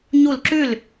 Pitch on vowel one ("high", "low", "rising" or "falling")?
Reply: falling